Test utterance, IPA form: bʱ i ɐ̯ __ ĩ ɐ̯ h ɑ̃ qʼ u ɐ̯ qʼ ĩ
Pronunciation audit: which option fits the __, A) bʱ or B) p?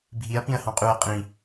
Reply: B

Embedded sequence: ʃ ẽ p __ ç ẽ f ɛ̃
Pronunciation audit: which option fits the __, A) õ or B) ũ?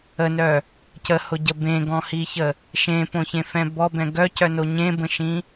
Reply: A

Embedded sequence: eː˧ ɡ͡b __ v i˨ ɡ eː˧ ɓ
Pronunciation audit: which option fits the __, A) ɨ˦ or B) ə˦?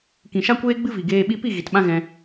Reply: A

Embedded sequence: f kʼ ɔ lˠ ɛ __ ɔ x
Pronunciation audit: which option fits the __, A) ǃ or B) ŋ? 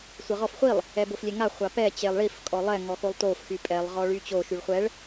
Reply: B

